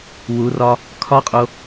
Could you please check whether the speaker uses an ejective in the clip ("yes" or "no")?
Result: yes